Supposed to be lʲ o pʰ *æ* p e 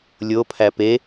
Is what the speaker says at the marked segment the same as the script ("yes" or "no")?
yes